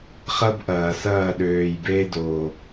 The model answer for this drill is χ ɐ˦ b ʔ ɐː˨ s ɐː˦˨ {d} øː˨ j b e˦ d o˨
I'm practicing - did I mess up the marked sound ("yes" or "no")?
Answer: yes